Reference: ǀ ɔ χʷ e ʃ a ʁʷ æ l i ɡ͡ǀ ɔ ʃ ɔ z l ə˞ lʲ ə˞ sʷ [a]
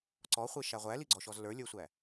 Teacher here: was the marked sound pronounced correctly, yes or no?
no